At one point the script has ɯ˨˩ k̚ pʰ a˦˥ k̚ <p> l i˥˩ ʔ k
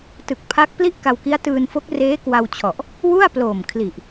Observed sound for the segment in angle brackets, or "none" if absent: p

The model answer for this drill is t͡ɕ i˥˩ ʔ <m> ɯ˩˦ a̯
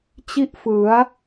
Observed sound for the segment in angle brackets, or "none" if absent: f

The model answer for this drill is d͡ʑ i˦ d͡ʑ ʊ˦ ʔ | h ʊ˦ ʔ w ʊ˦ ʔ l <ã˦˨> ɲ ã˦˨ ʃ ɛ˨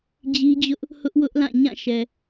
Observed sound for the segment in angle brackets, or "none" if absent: ã˦˨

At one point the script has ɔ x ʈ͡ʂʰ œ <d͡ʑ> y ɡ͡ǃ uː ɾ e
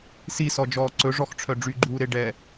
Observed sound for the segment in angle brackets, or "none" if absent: ɖ͡ʐ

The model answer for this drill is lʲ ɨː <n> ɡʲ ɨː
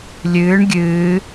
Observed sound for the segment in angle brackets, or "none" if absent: ɳ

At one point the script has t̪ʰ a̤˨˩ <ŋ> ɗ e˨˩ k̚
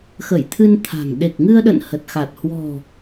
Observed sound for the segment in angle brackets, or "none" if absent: ŋ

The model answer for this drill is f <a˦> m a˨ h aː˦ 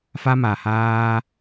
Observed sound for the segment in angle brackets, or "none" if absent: a˦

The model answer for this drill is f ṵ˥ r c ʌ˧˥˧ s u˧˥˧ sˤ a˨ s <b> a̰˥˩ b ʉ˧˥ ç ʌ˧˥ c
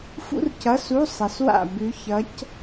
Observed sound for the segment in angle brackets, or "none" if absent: w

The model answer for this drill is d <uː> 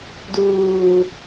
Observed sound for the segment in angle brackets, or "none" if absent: uː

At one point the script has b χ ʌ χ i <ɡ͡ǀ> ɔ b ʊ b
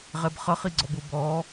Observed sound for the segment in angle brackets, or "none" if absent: ɡ͡ǀ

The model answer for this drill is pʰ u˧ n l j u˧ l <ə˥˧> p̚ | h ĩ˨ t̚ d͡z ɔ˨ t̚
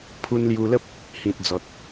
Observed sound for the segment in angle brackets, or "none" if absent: ə˦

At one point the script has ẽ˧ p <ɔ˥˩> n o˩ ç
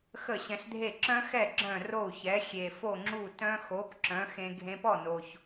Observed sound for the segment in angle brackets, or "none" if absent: ɔ˥˩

